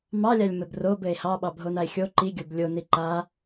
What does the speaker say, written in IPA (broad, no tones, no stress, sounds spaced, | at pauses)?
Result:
m ɑ lʲ a lʲ m ɘ b r o b ɘ e̯ h ɑ ɓ ɑ bʱ o n a e̯ xʲ o ǃ i ɡʲ o b lʲ o n i ǃ a